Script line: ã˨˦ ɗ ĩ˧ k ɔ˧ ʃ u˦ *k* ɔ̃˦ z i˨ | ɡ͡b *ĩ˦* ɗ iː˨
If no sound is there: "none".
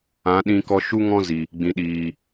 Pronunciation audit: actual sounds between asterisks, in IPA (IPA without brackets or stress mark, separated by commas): ŋ, ĩ˨